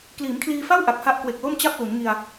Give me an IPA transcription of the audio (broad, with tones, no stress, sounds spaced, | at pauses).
k l iː˩˦ m kʰ l iː˧ f a˥˩ w ʔ a˨˩ k̚ h a˦˥ ʔ k w e˨˩ k̚ l o˥˩ m t͡ɕ a˥˩ p̚ l u˩˦ n ŋ i˧ a̯